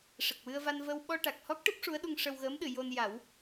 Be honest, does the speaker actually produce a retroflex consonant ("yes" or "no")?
yes